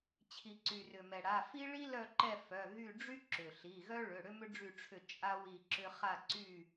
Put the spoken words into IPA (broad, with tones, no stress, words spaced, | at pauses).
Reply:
t͡ɕʰi˩ǀy˩rʏ˩mɛ˩ ɽa˩˧˩fi˥ ɭi˥lœ˦˨ǃɛ˦˨ fœ˩˧˩ɣy˦˨ ɖ͡ʐy˥ǁʏ˩ɬi˩˧˩ɣœ˥ ɭʏ˩˧˩ ɽʏ˥mʏ˥ɖ͡ʐy˦˨ʈ͡ʂʰʏ˦˨ t͡ʃʼa˥wi˦˨ ǁʏ˥ χa˦˨ǀy˦˨